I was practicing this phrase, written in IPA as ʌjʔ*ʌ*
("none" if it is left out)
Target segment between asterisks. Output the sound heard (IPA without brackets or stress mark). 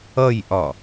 ɒ